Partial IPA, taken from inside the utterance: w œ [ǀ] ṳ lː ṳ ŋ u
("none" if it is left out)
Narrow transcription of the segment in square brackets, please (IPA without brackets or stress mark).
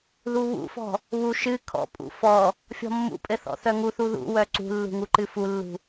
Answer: ǀ